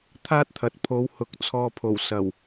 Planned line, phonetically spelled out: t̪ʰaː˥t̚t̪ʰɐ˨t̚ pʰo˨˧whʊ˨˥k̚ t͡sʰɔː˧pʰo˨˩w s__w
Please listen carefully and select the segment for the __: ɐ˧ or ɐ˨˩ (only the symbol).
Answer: ɐ˨˩